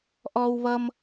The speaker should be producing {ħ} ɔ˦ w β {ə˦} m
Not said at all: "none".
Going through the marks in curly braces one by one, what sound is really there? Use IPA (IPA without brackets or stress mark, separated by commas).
ʔ, ʌ˦